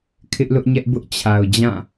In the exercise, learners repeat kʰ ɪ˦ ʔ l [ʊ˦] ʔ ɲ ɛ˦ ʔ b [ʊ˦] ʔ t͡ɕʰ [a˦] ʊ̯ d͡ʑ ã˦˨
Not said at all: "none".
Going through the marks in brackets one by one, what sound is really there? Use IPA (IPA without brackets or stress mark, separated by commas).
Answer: ʊ˦, ʊ˦, a˨